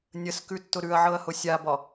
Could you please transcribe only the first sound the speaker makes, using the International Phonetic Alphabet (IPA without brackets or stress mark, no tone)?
nʲ